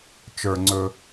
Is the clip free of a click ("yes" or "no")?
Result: no